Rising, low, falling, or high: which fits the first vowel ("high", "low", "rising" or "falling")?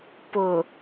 low